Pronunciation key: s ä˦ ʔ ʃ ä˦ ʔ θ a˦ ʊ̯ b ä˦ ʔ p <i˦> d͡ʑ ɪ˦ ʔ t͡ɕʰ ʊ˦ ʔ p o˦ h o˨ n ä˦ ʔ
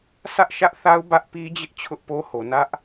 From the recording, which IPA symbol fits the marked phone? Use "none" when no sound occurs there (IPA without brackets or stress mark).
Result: i˦